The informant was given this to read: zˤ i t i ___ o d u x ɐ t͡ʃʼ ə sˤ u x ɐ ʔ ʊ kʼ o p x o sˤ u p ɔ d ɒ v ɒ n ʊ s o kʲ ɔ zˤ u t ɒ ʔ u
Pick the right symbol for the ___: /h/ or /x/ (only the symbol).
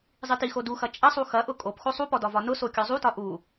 x